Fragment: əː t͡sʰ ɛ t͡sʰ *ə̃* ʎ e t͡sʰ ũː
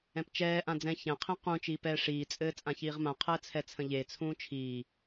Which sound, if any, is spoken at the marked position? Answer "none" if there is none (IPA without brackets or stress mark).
ə̃